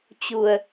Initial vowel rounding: rounded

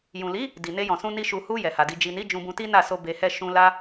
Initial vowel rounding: rounded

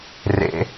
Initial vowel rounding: unrounded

